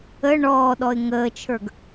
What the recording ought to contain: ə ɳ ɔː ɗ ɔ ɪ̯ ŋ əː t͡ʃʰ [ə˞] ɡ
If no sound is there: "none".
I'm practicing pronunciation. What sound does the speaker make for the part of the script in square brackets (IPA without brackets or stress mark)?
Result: ə˞